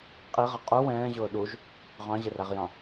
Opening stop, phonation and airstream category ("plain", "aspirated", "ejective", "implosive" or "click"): ejective